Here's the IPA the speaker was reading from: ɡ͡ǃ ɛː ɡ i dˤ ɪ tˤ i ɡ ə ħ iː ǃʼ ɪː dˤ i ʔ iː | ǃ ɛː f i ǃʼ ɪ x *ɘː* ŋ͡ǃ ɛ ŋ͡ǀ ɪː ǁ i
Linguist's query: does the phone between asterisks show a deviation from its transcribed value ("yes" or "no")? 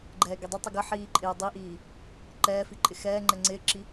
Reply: yes